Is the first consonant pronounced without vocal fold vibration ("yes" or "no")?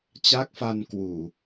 yes